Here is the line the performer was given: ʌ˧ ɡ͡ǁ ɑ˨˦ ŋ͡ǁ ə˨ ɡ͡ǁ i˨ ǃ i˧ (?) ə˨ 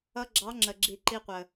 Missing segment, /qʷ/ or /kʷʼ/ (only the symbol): qʷ